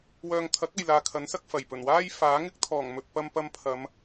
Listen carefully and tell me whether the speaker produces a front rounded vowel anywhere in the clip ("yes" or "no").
yes